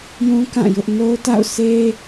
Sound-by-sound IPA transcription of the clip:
jũ˦kã˦˨ jʊ˦ʔ no˦ʊ̯ta̰˦˨ʊ̯se˦

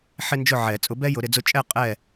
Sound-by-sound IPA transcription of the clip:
ħɪ˦nd͡ʒʊ˦˨ʕɛ˨˩˦ t͡sʼʊ˨˦bɛ˦ jʊ˨˦ɾɪ˨˦d͡zʊ˦ t͡ʃʼɛ˦˨ qʼɛ˦˨

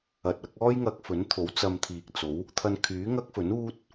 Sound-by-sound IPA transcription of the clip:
ɐ˨t̚ɐ˨˥k̚ ɔː˥jŋɐ˧k̚fɵ˨˥n t̪ʰo˨˥wt͡sɐ˧mt̪ʰiː˨k̚t͡so˨˥w | t̪ʰɐ˧nkʰyː˨˥ ŋɐ˥k̚fɵ˨˥nuː˥t̚

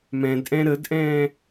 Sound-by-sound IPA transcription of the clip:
mɛ̃dʔɛ̃ ɾədʔɛ̃ː

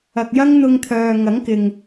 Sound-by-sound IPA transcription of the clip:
ɐ˨k̚jɐ˥ŋn̪ʊ˧ŋt̪ʰœː˨ ŋɐ˨˥ŋkɪ˨ŋ

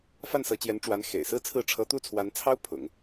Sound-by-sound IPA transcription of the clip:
fa˥˩nsɤ˧˥t͡ɕjɛ˧˥n ʈ͡ʂwa˧˥n xḛ˨˩ɪ̯sɹ̩˥t͡sʰɹ̩˥˩ ʈ͡ʂʰɤ˧˥t̪u˥˩t͡sʰwa˧˥nt͡sʰɑ˥ʊ̯ pʰʊ̰˨˩˦ŋ

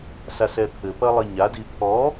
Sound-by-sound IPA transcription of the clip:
sasɛt̪ʰɘ pɐlˠiɲa dit̪ʰɔ

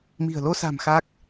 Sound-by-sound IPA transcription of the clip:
mi̤˨˩ə̯lo˧sa̤˨˩m xa˦˥k̚

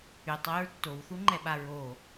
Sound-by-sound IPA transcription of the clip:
ytˤwyɹ tːowθuŋ͡ǃɛɓa ɹo

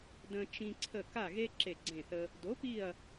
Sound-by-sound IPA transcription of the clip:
də̃˦t͡ʃĩ˦ ǀʰə˦˨ ka˦˨ɣe˦ ǁe˦˨ɡ͡ǀẽ˦˨θə˦ | do˨˥pi˦˨ɐ̯

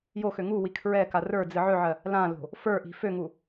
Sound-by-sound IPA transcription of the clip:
joxø ŋu wikʰɹɛka rə˞ d͡zɨʕøʕɜ | lãlo̤ | fə˞ʔi̤ føŋu

